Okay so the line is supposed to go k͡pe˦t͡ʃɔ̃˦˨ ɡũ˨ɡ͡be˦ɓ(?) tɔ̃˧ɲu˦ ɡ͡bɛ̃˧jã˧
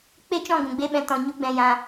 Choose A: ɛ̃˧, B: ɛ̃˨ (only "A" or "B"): A